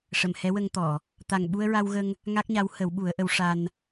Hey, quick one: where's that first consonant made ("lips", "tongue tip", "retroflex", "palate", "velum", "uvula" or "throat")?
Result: retroflex